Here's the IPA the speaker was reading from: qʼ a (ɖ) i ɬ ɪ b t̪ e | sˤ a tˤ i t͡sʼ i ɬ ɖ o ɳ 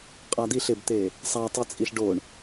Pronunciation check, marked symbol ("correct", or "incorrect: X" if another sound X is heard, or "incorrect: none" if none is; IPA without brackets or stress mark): incorrect: d̪